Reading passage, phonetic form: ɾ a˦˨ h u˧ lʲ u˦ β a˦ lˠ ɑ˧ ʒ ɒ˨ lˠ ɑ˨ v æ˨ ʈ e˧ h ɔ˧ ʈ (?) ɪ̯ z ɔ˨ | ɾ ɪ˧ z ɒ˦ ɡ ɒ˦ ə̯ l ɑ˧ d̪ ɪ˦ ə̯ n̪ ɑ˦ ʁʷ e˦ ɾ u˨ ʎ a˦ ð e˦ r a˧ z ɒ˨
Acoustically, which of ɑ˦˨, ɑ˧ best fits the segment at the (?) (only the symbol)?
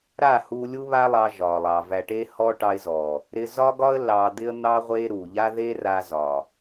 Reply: ɑ˧